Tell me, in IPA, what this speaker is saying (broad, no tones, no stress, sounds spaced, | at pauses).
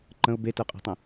ǃ ə̃ ʊ̯ b e t ɜ qʼ ɛ̤ tˤ ə̃